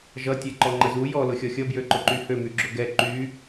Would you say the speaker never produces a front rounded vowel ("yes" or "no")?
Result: no